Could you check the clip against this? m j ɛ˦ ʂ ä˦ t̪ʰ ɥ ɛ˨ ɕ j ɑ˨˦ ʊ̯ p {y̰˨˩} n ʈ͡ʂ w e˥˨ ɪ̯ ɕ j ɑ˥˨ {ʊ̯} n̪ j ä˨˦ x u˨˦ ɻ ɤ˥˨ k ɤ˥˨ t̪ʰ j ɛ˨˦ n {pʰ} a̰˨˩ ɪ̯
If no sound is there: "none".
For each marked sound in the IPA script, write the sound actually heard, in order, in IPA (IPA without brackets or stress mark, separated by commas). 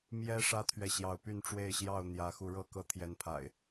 y˥˨, ʊ̯, pʰ